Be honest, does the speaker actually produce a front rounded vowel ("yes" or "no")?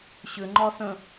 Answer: yes